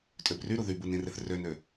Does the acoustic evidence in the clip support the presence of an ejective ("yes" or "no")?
yes